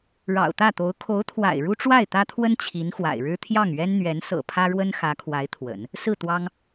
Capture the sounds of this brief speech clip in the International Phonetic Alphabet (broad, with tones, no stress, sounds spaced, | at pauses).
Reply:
ɻ ɑ̰˨˩ ʊ̯ t̪ ä˥˩ t̪ o˧˥ ʊ̯ kʰ o˧˥ ʊ̯ t̪ʰ w a̰˨˩ ɪ̯ ɻ u˥ ʈ͡ʂ w a˥˩ ɪ̯ t̪ ä˥ t̪ʰ w ə˥ n t͡ɕʰ i˧˥ n x w a̰˨˩ ɪ̯ ɻ ɻ̩˥ t̪ʰ j ɑ˥˩ ŋ ɥ ɛ˥ n n̪ ɥ ɛ˧˥ n s ɤ̰˨˩ pʰ ä˥ ɻ w ə˥ n x ä˧˥ kʰ w a˧˥ ɪ̯ t̪ʰ w ə̰˨˩˦ n | s ɹ̩˥˩ t̪ w ɑ˥ ŋ